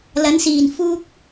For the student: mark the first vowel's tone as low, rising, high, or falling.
rising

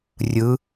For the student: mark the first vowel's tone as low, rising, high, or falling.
rising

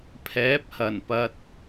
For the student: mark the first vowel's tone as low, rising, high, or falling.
rising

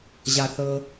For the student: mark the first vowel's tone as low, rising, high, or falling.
high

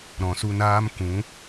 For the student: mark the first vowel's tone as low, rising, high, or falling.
low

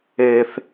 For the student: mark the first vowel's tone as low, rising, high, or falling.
low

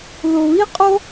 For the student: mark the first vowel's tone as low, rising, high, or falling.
low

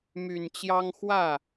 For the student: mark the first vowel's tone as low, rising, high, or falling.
low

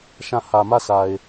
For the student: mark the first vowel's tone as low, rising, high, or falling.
falling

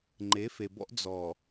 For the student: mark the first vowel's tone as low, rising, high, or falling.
rising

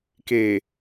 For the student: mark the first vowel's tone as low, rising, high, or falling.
low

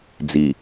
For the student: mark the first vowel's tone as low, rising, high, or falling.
low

